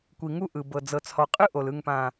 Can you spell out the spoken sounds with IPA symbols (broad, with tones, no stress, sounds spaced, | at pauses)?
kʷ i˨ ŋ u˦ ʔ ɯ˨ b ɤ˨ d͡z ɤ˨ t͡s h ɔ˨ qʼ ɯ˦ ʔ o˨ l ɯ˨ ŋ p ã˨